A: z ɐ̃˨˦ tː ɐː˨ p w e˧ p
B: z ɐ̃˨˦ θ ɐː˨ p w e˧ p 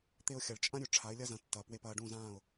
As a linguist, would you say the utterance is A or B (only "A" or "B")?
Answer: A